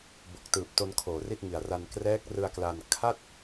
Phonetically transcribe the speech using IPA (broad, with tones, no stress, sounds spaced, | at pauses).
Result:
b o˨˩ k̚ t ɯː˨˩ p̚ t o˧ n kʰ oː˨˩ r i˥˩ t̚ ŋ i˨˩ a̯ r a˧ n k r ɛː˦˥ k̚ r ɯ˧ a̯ k l a˧ n kʰ a˥˩ t̚